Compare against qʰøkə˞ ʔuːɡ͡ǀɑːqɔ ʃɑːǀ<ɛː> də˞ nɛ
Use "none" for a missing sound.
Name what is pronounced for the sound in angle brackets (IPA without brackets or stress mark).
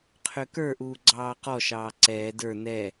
ɛː